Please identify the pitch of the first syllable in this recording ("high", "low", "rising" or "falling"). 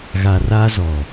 low